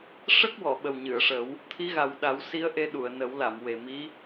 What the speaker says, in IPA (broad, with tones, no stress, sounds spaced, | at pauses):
ʂ ə˦˥ k̚ w ɔ˨˩˨ ɓ ə˨˩ w ɲ ɨ˨˩˨ ə̯ ʂ ə˨˩˦ w | t̪ʰ i˧˥ ɣ a˨˩ w ɗ a˨˩˦ w s i˧˥ ə̯ ʔ e˧ ɗ u˨˩˨ ə̯ n ə˨˩˦ w l a˨˩˨ m w e˨˩ m i˧˥